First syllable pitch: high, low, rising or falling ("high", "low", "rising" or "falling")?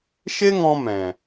high